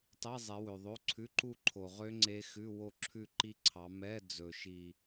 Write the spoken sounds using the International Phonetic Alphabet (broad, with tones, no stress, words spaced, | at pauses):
tˤi˧˥˧zˤɛ˨˦wø˨ ðˤo˧˥˧ǀʰʉ˧˥˧ǃu˥˧ ǃʰo˨ʁø˦˥ ŋ͡ǀe˦˥xʉ˧˥˧ wo˥˧ǁʰʉ˥˧ǃi˦˥ǀʰɑ˨˦ mɛ˧˥˧d͡zɵ˨ ʃi˥˧